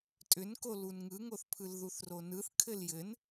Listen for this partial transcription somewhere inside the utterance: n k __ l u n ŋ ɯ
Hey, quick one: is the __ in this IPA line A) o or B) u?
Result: A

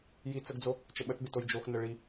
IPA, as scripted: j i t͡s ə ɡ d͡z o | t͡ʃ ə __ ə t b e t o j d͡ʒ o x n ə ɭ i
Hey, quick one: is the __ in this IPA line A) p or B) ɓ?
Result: B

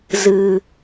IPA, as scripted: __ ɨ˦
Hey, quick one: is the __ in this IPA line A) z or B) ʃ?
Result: A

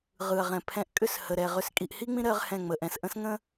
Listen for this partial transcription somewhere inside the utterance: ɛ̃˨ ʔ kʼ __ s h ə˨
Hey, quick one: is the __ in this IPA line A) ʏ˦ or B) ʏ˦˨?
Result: B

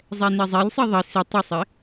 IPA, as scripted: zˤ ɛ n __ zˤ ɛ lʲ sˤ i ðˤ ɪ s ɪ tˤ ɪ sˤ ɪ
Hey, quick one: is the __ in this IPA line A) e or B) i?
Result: B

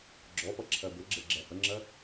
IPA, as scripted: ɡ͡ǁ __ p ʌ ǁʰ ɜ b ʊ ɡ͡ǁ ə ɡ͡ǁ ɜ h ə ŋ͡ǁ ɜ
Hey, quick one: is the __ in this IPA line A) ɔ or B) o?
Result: A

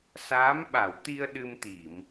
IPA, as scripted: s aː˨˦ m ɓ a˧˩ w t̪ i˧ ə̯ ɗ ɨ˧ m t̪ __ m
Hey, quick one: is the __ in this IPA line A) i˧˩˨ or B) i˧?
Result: A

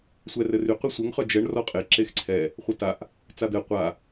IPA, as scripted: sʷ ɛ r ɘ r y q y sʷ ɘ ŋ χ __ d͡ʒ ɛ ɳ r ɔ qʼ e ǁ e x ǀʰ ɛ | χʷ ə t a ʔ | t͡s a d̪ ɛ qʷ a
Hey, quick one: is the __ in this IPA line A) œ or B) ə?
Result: A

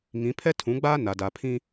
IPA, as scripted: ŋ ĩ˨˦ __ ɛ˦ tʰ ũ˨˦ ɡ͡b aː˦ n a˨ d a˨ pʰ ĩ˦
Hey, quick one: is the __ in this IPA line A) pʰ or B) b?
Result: A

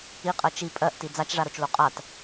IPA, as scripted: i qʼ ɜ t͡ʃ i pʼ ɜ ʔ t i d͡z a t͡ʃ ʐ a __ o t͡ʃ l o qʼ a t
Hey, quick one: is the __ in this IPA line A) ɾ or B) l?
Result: A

